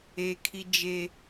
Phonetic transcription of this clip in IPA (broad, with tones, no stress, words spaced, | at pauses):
e˦kʰi˦d͡ʒe˦